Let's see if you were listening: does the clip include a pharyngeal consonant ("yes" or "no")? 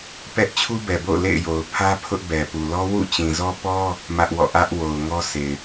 no